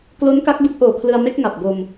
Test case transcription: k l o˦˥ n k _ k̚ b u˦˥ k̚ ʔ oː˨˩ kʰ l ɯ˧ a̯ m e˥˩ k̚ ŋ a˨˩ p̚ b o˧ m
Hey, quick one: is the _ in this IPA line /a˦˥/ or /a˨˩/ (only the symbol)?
a˦˥